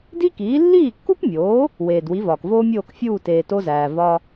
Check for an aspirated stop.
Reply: absent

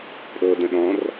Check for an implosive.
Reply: present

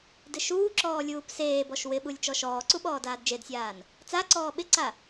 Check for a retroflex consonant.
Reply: absent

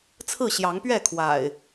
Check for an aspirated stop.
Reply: present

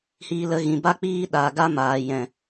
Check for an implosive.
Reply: present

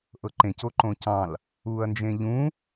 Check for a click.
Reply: present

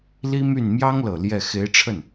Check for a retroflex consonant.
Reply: present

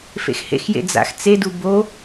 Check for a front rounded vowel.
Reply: absent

